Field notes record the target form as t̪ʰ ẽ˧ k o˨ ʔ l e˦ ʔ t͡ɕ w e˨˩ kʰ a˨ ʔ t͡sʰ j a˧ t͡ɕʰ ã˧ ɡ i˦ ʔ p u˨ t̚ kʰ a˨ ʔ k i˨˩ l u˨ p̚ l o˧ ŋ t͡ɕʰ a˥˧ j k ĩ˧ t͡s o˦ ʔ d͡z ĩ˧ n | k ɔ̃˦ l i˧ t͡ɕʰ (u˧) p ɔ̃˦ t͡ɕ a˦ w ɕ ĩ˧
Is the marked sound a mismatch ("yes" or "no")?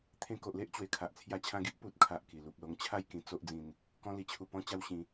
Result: no